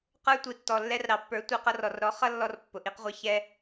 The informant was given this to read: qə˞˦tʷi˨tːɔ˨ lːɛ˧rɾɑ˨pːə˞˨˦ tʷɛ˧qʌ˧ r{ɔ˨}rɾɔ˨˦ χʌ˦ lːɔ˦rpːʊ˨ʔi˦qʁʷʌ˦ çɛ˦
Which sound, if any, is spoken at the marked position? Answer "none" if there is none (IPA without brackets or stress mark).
ɔ˨